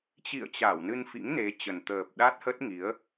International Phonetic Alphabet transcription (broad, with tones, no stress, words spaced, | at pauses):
t͡ɕḭ˧˨ə̯t͡ɕa˧˩w nɨ˧nfḭ˧˥ŋne˨˦ t͡ɕə˨˩nt̪əː˨˩p̚ ɗa˦˥t̚hə˦˥t̚ŋi˨˦ə̯